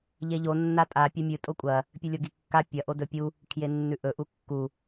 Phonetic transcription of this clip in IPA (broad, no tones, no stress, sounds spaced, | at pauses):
ʎ e ʎ o nː a tʼ a pʲ ɵ mʲ ɨ tʼ o kʷʼ ɐ | pʲ ʉ lʲ o ɡ i kː a pʲ ɐ ʔ o d ɵ pʲ u | kʰ j e nː ʉ ʔ ɵ ʔ u kː u